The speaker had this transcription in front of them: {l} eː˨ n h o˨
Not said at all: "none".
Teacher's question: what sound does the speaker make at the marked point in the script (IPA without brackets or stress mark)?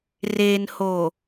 r